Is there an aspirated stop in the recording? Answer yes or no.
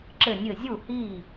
no